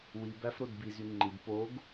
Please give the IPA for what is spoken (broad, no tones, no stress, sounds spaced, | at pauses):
w i b æ f ɾ o d b i z y ŋ͡ǃ i d p o ɡ